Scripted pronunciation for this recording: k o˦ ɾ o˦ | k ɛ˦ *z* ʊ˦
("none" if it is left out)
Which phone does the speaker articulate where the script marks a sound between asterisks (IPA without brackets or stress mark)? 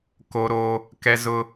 z